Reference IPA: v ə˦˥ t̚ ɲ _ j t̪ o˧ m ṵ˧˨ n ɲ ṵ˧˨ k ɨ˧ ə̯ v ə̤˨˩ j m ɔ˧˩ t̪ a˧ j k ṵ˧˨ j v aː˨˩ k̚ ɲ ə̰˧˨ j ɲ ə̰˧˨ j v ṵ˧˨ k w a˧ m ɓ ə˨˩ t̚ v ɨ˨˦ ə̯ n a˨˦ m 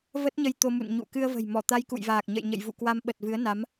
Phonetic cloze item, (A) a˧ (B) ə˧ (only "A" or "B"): B